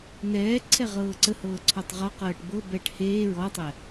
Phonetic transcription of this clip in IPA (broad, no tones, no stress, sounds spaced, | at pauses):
n ɛː ǀʰ ɛ ʁ ɤː ǀ ə h ɤː ǀʰ ɔ tˤ ʁ ɔ q ɤː ʈ b ɤ b ɛː ʈ h eː ɹ ɔ tˤ ɛ